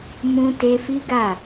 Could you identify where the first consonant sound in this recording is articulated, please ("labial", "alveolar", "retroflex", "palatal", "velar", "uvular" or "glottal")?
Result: labial